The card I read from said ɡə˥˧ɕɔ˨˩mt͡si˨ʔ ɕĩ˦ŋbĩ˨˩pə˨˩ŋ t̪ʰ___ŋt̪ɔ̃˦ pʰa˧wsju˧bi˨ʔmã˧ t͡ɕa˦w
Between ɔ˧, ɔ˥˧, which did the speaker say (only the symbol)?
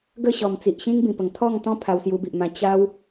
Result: ɔ˥˧